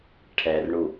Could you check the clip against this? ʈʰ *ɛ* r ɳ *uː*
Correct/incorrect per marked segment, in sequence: correct, incorrect

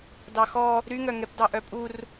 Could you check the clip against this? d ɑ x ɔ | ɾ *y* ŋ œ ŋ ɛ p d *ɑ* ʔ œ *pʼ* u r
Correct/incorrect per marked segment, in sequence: correct, correct, correct

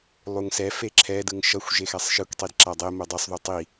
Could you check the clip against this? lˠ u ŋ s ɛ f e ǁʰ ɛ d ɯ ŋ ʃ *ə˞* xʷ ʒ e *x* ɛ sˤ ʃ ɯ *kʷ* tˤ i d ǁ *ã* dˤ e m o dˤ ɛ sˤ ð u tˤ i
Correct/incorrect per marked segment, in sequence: incorrect, correct, correct, incorrect

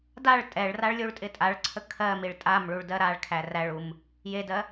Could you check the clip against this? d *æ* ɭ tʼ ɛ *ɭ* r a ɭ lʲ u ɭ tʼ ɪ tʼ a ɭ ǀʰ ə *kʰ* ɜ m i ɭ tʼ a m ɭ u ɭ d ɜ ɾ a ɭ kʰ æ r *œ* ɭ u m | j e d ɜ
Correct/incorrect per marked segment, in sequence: incorrect, correct, correct, incorrect

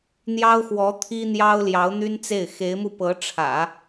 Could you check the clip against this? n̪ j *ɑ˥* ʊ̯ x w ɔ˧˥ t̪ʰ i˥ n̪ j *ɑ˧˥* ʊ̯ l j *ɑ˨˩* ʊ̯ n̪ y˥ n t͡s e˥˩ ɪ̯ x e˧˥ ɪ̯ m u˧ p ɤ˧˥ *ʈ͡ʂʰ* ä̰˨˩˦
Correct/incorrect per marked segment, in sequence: correct, incorrect, incorrect, correct

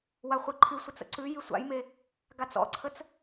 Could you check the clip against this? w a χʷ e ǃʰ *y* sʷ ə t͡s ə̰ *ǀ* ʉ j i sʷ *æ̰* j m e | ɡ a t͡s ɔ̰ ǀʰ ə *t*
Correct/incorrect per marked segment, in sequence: correct, correct, incorrect, incorrect

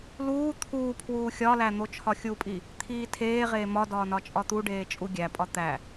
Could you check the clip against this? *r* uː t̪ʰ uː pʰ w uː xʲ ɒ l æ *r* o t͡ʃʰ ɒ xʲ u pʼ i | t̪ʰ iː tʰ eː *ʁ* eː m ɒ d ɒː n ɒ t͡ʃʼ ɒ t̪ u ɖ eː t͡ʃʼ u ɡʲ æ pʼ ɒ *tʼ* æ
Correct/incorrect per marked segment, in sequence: incorrect, incorrect, correct, incorrect

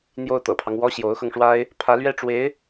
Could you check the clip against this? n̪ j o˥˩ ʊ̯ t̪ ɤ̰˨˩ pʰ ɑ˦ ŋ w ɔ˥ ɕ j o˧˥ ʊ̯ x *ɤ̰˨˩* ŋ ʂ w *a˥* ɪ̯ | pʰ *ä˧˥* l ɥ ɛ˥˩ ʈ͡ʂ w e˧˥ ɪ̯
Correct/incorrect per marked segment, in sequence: incorrect, correct, correct

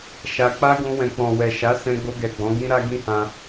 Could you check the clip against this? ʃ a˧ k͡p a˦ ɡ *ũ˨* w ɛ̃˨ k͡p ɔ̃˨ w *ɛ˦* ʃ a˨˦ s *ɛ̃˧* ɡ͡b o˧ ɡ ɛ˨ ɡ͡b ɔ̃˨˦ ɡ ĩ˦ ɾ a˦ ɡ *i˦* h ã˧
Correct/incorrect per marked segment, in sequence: incorrect, incorrect, correct, incorrect

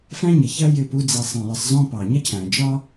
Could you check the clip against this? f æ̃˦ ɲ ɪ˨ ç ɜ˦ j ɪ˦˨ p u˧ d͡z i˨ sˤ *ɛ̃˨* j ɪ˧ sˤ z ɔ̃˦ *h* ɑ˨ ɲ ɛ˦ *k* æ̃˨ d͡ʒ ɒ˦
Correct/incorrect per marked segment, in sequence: correct, incorrect, incorrect

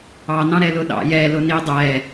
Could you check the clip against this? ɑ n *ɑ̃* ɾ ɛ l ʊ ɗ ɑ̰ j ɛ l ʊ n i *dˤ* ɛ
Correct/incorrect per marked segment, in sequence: correct, correct

